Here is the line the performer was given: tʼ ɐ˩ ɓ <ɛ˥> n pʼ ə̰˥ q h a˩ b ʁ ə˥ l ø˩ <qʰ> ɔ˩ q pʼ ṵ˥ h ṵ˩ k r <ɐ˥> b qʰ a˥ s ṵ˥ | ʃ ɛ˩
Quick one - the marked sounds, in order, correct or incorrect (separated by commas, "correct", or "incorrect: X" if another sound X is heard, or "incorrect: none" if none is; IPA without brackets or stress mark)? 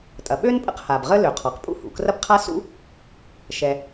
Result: incorrect: ø˥, correct, correct